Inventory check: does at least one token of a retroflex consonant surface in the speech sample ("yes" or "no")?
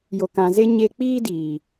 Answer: no